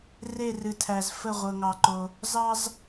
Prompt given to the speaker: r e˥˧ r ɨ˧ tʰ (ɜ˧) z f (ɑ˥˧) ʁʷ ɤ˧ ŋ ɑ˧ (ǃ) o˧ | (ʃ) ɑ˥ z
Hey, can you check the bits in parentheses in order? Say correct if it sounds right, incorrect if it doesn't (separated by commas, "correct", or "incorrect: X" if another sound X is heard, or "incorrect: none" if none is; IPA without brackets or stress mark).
incorrect: æ˧, incorrect: ə˥˧, correct, incorrect: z